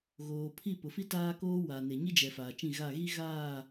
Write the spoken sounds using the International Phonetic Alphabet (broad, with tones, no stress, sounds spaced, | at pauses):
ɣ oː˨ pʰ i˦˨ p ʊ˨ f i˦ t aː˦ k oː˦ w a˨ n e˨ ɲ i˦ d͡ʒ ɛ˨ f aː˨ t͡ʃ ĩ˦˨ ɣ a˦˨ ɣ i˦ ɣ aː˦˨